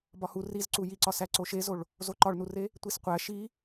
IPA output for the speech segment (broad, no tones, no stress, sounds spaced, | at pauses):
b ɒ h u r i z ǀ u j i ǀ ɒ s æ ǀ o ʃ e z o ɭ | z o ǃ ɒ ɭ n u r e | tʷ i s qʷ æ ʃ i